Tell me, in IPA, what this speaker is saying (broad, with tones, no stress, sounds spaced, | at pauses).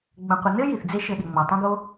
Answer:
ɡ͡b ə̃˨ qʷ ə˨ n ɘ˦ j i˨ θ d͡z e˦ ʃ ɘ˧ ɗ ɪ˨ ŋ͡m ɔ˨ tˤ ə̃˦ ɡ o˦